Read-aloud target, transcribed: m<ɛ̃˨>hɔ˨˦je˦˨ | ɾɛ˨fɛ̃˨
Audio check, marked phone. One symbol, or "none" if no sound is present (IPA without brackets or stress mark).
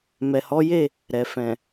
ɛ˨